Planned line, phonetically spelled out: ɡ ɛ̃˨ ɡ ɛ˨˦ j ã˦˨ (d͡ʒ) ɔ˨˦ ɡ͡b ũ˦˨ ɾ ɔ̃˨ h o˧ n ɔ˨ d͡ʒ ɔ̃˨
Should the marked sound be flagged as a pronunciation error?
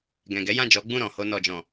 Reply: no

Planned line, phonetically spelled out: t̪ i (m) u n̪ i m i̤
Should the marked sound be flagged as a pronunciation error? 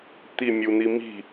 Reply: yes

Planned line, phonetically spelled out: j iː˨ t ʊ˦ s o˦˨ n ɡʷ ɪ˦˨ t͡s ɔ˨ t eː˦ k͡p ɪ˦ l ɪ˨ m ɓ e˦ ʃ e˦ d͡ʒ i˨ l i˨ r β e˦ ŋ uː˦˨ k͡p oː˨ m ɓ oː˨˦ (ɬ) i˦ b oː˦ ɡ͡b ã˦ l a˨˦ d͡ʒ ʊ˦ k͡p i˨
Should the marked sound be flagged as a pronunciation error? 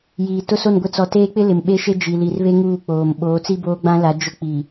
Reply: yes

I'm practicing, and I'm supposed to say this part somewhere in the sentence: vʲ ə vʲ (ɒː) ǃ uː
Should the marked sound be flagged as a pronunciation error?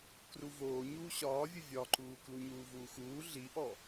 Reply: yes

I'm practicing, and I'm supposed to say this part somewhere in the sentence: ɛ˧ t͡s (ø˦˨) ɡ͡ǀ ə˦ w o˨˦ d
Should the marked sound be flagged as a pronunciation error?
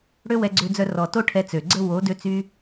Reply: yes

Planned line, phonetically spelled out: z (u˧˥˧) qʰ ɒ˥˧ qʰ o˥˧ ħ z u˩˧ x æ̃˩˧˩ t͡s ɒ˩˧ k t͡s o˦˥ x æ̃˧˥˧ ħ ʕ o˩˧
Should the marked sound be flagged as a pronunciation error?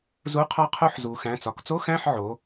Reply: no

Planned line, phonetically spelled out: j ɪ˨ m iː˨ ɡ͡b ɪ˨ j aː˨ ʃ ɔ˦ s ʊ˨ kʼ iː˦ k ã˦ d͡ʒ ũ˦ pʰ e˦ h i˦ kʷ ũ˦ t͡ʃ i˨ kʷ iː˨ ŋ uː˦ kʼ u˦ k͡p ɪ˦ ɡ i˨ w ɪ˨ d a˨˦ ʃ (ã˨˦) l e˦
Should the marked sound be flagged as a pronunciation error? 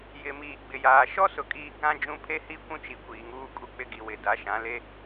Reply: no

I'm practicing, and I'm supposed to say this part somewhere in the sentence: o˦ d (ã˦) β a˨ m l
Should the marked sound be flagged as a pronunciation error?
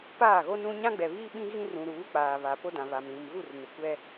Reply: yes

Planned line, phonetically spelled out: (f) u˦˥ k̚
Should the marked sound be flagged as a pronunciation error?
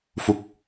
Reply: no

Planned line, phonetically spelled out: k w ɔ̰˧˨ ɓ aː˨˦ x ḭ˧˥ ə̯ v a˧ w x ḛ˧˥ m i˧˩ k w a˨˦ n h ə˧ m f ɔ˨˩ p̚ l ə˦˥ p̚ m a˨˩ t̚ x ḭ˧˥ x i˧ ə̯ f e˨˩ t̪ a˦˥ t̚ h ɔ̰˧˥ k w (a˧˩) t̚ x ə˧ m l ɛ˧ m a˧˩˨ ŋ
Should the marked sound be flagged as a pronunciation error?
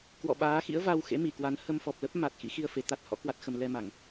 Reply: yes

